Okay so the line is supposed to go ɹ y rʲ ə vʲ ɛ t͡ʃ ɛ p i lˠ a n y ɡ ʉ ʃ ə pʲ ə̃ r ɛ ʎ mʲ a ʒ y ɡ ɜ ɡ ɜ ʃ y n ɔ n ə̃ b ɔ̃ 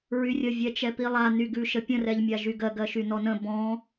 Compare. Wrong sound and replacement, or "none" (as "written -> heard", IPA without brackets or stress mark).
none